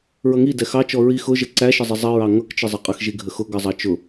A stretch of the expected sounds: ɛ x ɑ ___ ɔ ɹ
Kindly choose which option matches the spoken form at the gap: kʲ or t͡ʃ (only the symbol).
t͡ʃ